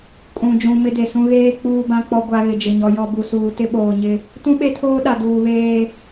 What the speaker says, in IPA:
kʼ ũ˨ d͡ʒ ũ˨ m ɪ˦ d e˨ s ũ˦ ɣ eː˦ k͡p uː˦ b ã˦ k͡p ɔ˦ ɡʷ a˨ ɣ ɪ˨ d͡ʒ ɪ˨ ɲ ɔ˨ j ɔ˨ b u˨ s uː˨ t ɪ˦ ɓ oː˨ ɲ ɪ˦ | t ũ˦ ɓ e˦ tʰ oː˦ ɗ a˨ d uː˨ β eː˦

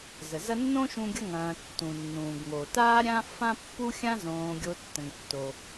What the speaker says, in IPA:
z ə˩ z ɐ˦ nː õ˥ ʃ ũ˦ ɡʲ ʌ˦ ŋ ɐ̃ː˨ tː ũ˩ nː ũː˩ ɡ ŋ o˩ t aː˦ ɾʲ ã˦ f ã˦ pː u˦ xʲ ã˦ z õː˨ ɡʲ o˨ tː ə̃˩ ŋ tː o˩

